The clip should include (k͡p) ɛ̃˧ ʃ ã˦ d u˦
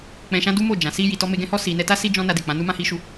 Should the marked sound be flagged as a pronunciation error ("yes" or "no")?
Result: no